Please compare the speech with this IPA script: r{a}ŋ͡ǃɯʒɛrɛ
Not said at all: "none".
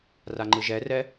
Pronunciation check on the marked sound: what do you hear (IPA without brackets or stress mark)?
a